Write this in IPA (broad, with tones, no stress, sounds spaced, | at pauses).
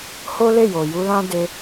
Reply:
h o˦ l e˦˨ j o˨ j u˧ l ã˦ d e˧